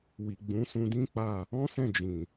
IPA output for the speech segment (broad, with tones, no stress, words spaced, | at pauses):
wi˨ɡ͡bũ˨˦ sũ˧ dĩ˦k͡pa˦˨ | ɔ̃˦sɛ̃˦˨d͡ʒĩ˨